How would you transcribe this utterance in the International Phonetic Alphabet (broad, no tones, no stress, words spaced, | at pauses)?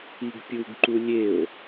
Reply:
iɡpʲuɡǃu lʲeo̯